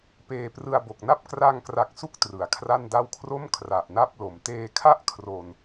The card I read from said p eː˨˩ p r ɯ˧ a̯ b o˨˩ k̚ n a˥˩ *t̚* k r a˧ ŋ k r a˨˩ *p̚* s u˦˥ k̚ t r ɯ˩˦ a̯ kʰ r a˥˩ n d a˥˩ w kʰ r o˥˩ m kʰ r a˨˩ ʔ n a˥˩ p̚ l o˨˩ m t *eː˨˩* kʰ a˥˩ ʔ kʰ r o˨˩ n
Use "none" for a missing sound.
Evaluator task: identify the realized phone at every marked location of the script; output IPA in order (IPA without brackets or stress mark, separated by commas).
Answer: p̚, k̚, eː˧